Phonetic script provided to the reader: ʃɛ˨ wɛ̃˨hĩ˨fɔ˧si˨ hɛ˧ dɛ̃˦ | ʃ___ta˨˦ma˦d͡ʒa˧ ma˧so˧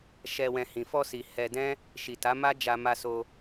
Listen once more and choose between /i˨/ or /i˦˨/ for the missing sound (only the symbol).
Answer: i˨